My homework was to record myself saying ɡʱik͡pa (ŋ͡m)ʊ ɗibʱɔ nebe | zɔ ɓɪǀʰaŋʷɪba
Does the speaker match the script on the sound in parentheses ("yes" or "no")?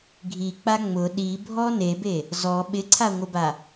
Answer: yes